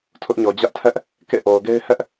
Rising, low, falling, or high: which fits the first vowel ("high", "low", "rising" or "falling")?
high